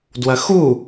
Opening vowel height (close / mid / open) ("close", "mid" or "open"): open